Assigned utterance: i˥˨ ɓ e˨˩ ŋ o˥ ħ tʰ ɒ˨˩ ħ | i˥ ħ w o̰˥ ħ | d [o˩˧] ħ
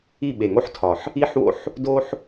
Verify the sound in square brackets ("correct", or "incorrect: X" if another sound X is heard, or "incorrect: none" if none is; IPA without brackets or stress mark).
incorrect: o˥